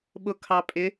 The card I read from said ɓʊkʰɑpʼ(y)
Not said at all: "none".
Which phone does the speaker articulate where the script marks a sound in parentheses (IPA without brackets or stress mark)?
ɪ